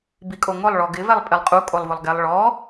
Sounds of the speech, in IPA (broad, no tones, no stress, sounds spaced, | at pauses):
b i kʼ o ŋ ʊ lˠ ɭ ɔ ɡ ɪ v ɛ lˠ pʼ ɪ lˠ qʼ u kʼ o lˠ v ʊ lˠ ɡ ɛ lˠ ɭ ɔ